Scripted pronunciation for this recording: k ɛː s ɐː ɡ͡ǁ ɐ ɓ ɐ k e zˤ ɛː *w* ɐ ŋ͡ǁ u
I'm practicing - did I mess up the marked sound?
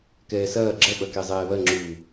yes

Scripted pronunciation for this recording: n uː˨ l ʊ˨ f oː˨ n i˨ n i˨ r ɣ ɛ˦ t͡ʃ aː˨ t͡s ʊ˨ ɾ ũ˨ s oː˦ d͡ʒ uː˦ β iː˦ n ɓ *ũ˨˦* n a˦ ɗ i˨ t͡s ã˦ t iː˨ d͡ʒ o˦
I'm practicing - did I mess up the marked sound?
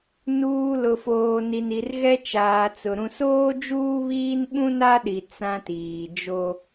yes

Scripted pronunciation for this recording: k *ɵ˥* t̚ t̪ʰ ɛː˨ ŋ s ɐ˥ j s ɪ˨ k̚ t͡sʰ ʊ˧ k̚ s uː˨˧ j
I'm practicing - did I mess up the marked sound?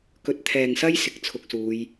yes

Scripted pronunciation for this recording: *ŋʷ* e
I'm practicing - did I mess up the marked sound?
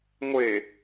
no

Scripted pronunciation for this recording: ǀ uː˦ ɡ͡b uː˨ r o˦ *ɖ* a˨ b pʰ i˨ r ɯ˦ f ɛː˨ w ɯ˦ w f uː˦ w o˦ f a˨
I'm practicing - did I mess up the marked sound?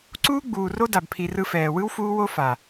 yes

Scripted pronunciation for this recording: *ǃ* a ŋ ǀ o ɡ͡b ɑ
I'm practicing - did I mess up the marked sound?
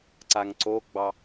yes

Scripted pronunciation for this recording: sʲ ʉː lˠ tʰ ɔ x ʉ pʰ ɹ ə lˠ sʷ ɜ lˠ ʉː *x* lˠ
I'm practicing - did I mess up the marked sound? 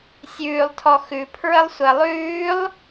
yes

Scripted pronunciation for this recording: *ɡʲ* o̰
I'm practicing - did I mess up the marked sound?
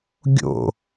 no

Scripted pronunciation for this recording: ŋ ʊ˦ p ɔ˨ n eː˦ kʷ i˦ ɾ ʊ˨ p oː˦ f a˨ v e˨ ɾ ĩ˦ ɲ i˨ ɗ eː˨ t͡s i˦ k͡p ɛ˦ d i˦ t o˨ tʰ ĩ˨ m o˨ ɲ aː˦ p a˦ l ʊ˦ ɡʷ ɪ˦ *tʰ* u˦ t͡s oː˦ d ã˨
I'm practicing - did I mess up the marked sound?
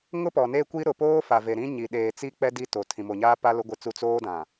yes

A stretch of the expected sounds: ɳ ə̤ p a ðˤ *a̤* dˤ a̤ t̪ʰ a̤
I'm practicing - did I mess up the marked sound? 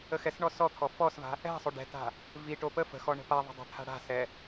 yes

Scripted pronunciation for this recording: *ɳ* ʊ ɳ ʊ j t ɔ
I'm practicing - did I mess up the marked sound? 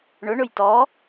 no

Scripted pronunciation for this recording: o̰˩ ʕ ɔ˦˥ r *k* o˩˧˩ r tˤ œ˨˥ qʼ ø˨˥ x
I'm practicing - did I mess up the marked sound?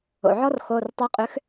yes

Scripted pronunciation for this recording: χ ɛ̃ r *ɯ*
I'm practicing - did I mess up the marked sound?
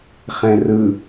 no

